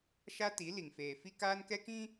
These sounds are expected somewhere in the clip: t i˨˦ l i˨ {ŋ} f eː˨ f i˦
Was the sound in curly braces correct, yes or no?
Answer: yes